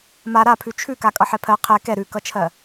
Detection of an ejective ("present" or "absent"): present